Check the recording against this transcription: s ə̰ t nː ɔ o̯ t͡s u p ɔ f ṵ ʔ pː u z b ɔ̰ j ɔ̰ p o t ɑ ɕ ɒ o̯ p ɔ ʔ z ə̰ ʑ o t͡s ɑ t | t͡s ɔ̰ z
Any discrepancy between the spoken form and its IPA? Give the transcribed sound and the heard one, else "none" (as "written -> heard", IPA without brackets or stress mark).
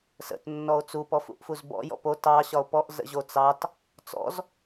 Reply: pː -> f